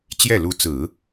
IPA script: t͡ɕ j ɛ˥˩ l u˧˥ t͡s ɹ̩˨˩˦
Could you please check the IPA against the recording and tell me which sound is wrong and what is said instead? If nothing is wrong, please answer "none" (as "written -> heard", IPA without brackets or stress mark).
none